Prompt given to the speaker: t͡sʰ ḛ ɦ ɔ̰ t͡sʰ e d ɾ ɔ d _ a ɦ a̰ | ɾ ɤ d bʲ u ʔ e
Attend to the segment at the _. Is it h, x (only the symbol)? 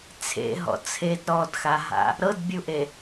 x